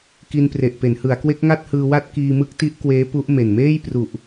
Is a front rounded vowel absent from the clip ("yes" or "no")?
yes